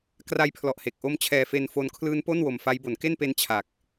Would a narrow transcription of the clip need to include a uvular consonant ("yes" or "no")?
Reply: no